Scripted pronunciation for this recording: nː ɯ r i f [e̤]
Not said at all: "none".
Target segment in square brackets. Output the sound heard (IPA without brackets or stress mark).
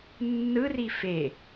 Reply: e